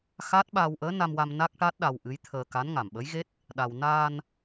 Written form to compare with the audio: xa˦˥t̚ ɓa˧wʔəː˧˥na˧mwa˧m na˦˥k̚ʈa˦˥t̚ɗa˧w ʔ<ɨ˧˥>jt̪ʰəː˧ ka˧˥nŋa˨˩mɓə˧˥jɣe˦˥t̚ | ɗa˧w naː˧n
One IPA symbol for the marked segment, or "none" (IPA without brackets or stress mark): ɨ˧˥